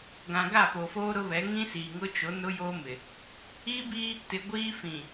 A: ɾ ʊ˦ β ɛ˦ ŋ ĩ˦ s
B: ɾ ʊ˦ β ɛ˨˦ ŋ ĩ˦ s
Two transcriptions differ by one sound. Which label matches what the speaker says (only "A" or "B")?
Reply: B